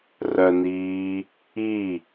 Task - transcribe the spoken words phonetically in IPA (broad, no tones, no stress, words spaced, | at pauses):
rœniː | i